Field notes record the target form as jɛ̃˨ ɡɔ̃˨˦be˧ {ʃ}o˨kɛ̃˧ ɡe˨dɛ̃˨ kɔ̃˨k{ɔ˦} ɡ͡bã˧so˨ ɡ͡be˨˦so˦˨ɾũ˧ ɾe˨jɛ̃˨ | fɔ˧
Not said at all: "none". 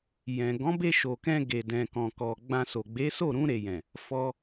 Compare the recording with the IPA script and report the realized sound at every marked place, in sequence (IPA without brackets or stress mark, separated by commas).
ʃ, ɔ˨